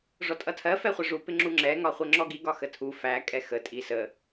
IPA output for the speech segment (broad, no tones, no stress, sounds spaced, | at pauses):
ʐ ɔ tʼ ʌ tʰ ɜ f ɛ χʷ ɜ ʐ u p ɪ ŋ͡ǁ u ŋ͡ǁ ɛ ŋ ɒ χʷ ə ŋ͡ǁ ɔ ɡ i ɡ ɒ x ə tʰ u f æ kʼ ɛ x ə tʼ i s ə